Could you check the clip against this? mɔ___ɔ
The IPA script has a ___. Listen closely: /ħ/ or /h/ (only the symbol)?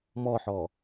ħ